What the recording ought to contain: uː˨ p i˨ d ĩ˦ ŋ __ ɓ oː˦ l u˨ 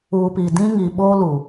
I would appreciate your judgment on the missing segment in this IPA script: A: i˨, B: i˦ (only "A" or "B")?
A